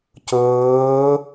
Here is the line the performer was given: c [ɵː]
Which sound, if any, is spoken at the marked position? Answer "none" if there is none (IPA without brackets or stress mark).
ɵː